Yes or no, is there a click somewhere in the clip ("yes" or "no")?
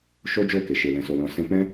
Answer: no